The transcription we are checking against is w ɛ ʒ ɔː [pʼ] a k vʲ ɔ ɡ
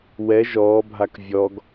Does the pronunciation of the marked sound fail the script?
yes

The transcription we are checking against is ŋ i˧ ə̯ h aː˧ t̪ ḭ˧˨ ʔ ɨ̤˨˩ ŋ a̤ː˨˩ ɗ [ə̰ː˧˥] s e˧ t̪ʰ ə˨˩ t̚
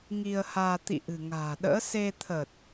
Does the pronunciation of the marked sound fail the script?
no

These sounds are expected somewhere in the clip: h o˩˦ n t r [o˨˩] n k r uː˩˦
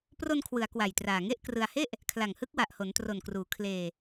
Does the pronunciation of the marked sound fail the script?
no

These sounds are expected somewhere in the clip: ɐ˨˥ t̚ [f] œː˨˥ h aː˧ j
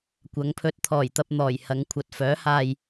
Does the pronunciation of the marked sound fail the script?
no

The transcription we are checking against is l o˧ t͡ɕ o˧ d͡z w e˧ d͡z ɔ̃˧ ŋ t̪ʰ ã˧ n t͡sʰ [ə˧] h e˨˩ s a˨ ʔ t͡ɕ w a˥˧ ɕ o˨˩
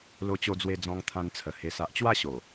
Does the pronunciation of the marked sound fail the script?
yes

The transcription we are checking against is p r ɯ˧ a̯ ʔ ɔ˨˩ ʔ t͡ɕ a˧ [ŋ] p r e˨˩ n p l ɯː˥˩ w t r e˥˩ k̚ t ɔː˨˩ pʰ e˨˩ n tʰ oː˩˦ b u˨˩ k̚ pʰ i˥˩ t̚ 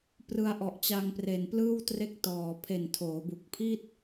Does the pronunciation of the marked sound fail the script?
no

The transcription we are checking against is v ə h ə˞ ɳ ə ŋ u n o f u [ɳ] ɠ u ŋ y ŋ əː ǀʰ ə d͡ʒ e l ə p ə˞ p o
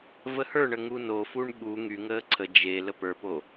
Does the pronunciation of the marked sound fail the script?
no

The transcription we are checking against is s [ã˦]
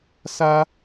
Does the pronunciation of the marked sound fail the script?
yes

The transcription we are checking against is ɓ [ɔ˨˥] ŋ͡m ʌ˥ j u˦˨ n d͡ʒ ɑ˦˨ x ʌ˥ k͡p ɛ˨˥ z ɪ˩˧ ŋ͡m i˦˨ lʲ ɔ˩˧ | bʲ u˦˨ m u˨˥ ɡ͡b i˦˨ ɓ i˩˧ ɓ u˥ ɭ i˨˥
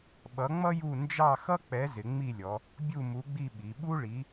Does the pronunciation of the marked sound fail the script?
yes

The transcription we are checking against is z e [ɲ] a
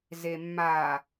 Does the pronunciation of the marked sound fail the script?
yes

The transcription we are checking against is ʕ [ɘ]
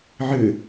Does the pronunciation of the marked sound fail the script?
no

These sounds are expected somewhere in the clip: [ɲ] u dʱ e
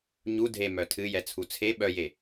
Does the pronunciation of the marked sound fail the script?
no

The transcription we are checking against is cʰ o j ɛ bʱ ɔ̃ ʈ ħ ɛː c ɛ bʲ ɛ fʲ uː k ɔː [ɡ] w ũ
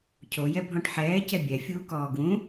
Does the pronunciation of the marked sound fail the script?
no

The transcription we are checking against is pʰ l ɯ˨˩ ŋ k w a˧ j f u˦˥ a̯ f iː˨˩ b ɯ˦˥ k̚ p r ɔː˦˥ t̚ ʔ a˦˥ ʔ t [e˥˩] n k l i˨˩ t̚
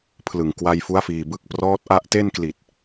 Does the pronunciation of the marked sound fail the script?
no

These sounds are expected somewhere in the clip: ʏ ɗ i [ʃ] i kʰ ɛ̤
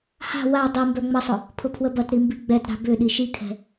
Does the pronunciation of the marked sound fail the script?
no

